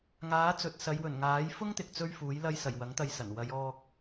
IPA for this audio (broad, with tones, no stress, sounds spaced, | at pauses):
ŋ aː˨˥ t͡s ɵ˨ t̚ s ɐ˨˧ j w ɵ˨˩ n ŋ aː˨˥ j f ʊ˥ ŋ t̪ ɪ˨ k̚ t͡s ɵ˥ ɥ f uː˨˥ j l ɐ˧ j s ɐ˨˩ j w ɐ˨˥ ŋ t̪ ɐ˧ j s ɐ˨˩ n w ɐ˨˧ j ɔː˧ k̚